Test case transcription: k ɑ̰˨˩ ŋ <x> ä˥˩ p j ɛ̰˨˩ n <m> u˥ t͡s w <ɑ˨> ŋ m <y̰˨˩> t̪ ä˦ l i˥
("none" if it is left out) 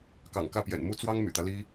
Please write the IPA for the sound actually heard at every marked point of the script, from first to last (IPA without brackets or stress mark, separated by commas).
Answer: k, m, ɑ˥, y̰˨˩